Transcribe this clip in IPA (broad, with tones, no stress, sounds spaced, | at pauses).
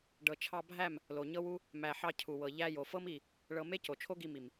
ɖ ɤ˨ t͡ʃʰ ɑ˧ bʱ æ˦˨ m | l o˨ ɲ ɤ˦ w u˦ | m æ˨ ħ ɑ˧ cʰ u˨ w ɤ˨ ʎ æ˧ j o˨ f ɤ˦ m i˦˨ | ɭ ɤ˧ m e˦ c o˨ t͡ʃʰ o˦ ɡ i˧ m i˨ m